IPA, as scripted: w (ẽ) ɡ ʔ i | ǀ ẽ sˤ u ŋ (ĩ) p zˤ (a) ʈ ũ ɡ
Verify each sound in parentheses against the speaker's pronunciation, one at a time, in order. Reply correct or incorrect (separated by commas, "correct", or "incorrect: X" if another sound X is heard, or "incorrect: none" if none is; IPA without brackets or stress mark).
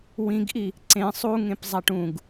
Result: incorrect: ĩ, incorrect: ẽ, correct